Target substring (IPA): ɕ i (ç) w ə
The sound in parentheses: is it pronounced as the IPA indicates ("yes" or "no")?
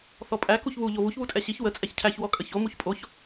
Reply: yes